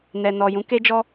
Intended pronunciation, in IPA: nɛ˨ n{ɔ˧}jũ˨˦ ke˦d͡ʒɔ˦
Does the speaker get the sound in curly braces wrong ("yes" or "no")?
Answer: yes